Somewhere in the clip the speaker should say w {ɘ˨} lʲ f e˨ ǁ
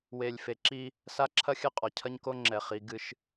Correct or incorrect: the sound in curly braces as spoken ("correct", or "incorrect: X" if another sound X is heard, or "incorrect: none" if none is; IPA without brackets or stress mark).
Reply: incorrect: e˨